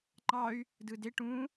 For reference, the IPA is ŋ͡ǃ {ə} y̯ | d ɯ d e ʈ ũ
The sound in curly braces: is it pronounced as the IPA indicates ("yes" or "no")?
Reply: no